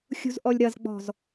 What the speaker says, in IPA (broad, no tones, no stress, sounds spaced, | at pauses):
xʲ ṳ z ʔ ɔ lʲ ɾ ɐ z ɡ͡b ɔ̤ z